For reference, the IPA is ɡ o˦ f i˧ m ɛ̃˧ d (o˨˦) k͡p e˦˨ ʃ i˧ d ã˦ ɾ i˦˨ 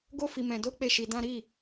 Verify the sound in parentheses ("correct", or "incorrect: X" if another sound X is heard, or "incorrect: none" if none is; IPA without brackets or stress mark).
incorrect: o˦